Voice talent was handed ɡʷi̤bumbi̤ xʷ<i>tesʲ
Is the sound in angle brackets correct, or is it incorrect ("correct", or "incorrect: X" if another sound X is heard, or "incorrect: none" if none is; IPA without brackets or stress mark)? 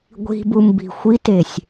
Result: correct